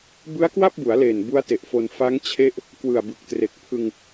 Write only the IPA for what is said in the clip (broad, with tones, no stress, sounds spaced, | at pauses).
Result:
b ɯ˦˥ a̯ k w a˥˩ p̚ b u˩˦ a̯ l eː˨˩ n b u˦˥ a̯ t e˨˩ ʔ f o˧ n f a˦˥ ŋ t͡ɕʰ e˦˥ ʔ | k w ɯ˨˩ a̯ b ɯ˨˩ k̚ t r e˨˩ k̚ pʰ ɯ˧ ŋ